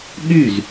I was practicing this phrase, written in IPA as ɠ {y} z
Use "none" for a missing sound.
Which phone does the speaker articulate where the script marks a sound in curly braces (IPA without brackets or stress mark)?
y